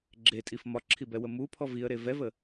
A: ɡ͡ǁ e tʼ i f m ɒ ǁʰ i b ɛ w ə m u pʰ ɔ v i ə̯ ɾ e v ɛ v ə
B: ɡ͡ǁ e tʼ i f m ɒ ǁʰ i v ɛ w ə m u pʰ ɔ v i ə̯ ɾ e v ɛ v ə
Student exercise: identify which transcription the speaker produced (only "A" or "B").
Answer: A